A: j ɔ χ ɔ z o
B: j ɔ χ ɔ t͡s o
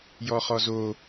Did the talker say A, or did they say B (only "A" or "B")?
A